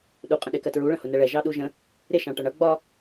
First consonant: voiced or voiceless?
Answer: voiced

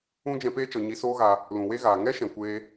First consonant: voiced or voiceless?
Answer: voiced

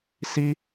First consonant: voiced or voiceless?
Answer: voiceless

